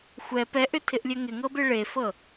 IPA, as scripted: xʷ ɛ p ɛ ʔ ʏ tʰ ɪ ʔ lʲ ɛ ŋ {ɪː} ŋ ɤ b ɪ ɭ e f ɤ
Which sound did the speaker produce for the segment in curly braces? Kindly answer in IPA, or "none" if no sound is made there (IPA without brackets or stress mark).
ɪ